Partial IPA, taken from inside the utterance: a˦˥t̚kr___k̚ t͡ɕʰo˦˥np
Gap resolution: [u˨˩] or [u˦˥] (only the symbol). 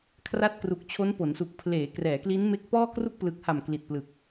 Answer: u˨˩